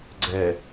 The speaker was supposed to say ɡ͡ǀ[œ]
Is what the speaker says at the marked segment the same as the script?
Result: no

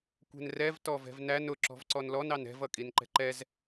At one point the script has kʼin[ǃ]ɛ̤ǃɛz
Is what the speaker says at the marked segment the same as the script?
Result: yes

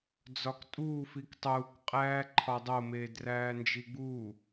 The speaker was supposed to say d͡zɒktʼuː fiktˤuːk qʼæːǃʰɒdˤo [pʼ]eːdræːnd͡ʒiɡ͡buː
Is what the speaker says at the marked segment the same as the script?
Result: no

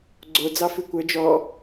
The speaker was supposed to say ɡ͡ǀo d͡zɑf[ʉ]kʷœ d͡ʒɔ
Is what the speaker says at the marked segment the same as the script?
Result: yes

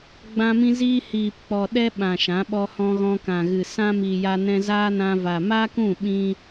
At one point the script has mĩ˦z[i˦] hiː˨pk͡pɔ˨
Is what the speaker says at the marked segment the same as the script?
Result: no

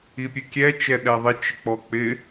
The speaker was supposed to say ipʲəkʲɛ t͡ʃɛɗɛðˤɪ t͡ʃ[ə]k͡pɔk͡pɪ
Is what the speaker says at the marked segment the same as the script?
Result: no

